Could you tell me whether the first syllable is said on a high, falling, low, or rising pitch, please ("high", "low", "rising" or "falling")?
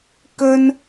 high